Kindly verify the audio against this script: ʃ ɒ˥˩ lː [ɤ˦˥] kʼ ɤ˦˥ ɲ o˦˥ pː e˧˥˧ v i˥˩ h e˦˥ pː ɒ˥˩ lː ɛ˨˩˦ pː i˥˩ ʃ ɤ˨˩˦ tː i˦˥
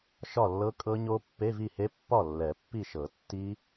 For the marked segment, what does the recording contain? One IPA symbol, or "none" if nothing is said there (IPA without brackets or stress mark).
ɤ˦˥